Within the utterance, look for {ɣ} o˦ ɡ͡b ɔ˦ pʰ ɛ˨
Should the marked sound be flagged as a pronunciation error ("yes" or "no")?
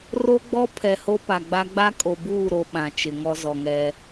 yes